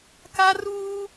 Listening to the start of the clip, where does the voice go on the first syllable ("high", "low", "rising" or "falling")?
high